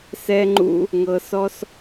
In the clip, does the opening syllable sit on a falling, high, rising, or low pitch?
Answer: high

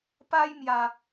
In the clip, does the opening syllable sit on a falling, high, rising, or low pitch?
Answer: high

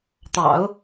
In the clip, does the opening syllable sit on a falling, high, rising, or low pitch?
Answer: low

